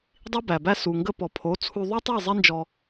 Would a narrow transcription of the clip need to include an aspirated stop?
yes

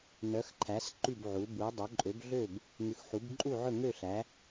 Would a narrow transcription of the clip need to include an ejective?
yes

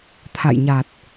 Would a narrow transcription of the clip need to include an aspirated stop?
yes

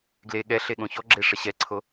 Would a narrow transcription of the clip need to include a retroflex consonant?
yes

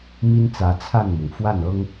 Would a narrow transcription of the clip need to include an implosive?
no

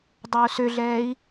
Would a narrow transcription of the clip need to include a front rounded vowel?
yes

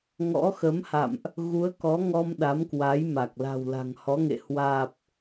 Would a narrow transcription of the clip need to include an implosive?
yes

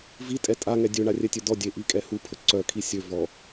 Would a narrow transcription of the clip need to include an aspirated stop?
yes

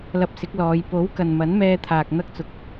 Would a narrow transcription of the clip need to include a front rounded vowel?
no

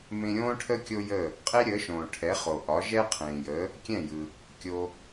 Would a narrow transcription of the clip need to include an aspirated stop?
yes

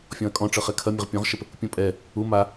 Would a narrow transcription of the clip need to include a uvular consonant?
yes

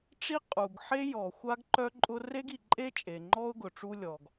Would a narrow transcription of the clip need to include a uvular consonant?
yes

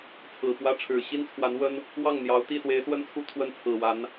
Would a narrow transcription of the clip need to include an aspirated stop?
yes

